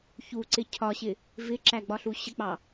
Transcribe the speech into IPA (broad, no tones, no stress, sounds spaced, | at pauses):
ç u ǀ ɪ cʰ ɒ ɕ ɪ | v ɪ ǁ æ ɡ͡b ɒ ɬ u ɕ ə k͡p ɑ